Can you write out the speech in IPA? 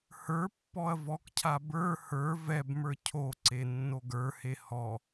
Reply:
h ə˞ pː ɔ ɐ̯ v ɔ k cʰ a b ə˞ h ə˞ v ɛ b m ə˞ cʰ o ǀ e nː o ɡ ə˞ h e h ɔ

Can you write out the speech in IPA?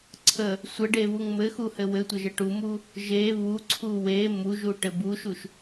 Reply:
ǀʰ ə | sʷ ə ɖ e β u ŋ m ɘ x u h ɘ w ɘ tʷ ə ʒ ɘ ʈ u m u | ʒ e β u ǀʰ u w e m u ʒ u ʈ ɘ b u ʃ u ʃ

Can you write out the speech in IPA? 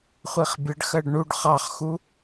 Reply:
χʷ i χ bʲ ə ɖ x ɜ ɖ ɳ u ɖ χ ɑ χ x u

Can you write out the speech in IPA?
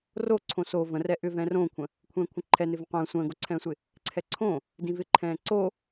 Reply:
r o ǀʰ õ s o v ə̃ r ɛ ʔ ʏ v ɛ̃ː r õː kʷʰ ə̃ | kʷʰ ɛ̃ː kʷʰ ə̃ ǃʰ ɛ n ɪ v ə̃ qʷ ə̃ː sʷ ə̃ː ɡ o ǀʰ ɛ̃ː sʷ ɪ | ǀʰ ɛ ǀʰ õ | d ĩ v ɪ ǃʰ ɛ̃ː ǀ o

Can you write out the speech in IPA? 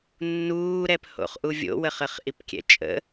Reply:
nː uː ɾ ɛ p h o̰ χ ʔ u vʲ o̰ w ə χ ə χ ʔ i p kʲ ɛ̰ t͡ʃʼ ə̰

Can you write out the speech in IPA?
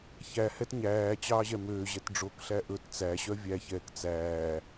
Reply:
ç æ h ɛ t ɲ æː t͡ɕ ɑː ʑ ɛ m øː ʑ ɛ t ɖ͡ʐ o k ɬ æ ʔ ɵ t t͡s æ ɕ œ vʲ æ ç ɛː k t͡s æː

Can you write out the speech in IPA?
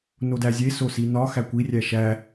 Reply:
n o d æ zʲ e s o s i n ɒ x æ kʷ i rʲ æ ʃ æ

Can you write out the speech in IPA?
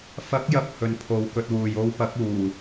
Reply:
f ɐ˨˥ k̚ j ɐ˨ p̚ h ɵ˨˧ n pʰ o˨˥ w k ɵ˨˥ t̚ w uː˨ j o˧ w p ɐ˨˥ k̚ uː˨˩

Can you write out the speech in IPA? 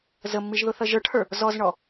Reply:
z ə mː i ʒ ð ʊ θ ʌ ʒ ə˞ ʈ h ə˞ | z ɔ z ɳ ɔ

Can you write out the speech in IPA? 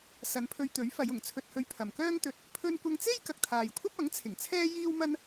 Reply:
s ɐ˨˧ n pʰ ɵ˧ ɥ t̪ ɵ˨˥ ɥ f ɐ˨˧ j ʊ˨˩ ŋ t͡sʰ ɵ˧ t̚ h ɵ˧ ɥ pʰ ɐ˨ m k œː˥ ŋ t̪ ɵ˧ t̚ | pʰ ɵ˧ n kʷ ɐ˧ ŋ t͡s e˥ j k ɐ˨ k̚ t̪ʰ aː˨ j kʷʰ ɐ˥ p̚ ɐ˨˥ ŋ t͡sʰ ɪ˨˩ ŋ t͡sʰ ɛː˥ j iː˥ w m ɐ˥ n

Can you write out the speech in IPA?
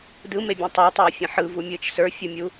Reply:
d ɯ m e bʲ ẽ tˤ a tˤ ɯː fʲ ə̃ ħ ɯ v u mʲ ɯː t͡ʃ s ə˞ fʲ u mʲ u

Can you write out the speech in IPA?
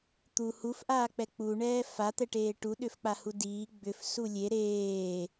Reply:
t̪ u h u f ʔ aː k͡p ɛ k͡p u ɳ ɛː f a t̪ ɛ ʈ eː ʈ u ɗ ʏ f k͡p a h u d iː ɡ͡b ʏ f s u lʲ e ɾ eː

